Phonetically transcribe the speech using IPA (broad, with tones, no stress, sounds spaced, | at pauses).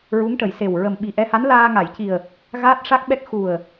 ɹ u˧˥ ŋ ʈ ə˨˩˨ j s e˨˩ w ɹ ə˨˩ m ɓ i˨˩ ʔ ɛ˧ h a˧˥ n l aː˧ ŋ a˨˩˨ j c i˨˩ ə̯ | ɣ aː˦˥ t̚ ʂ a˦˥ k̚ ɓ ɛ˦˥ k̚ x u˨˩ ə̯